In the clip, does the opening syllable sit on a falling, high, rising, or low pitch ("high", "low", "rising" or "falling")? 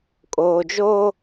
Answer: low